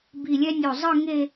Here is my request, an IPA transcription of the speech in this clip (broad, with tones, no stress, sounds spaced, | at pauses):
b i˧˩ lʲ ɛ˥ nʲ o˧˩ zˤ ɯ˥˧ ŋ e˥˧